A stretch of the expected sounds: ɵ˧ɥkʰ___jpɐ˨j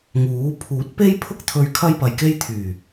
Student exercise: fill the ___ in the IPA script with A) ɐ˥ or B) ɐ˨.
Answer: A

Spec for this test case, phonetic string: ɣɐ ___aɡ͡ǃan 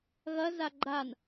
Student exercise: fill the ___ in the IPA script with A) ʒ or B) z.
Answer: B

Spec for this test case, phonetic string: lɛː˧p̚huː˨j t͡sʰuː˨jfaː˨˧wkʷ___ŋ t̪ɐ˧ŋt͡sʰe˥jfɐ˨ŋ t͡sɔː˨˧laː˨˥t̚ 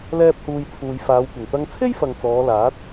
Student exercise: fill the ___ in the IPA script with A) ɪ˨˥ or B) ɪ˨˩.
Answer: B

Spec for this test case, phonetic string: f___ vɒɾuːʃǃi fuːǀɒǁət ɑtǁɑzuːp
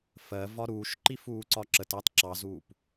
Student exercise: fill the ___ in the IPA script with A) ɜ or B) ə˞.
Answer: A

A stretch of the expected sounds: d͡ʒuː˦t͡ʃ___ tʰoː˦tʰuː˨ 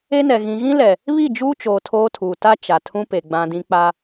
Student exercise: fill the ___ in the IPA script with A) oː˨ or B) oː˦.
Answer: A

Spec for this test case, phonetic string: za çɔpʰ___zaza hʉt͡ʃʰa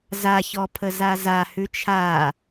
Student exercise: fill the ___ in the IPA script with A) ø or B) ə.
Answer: B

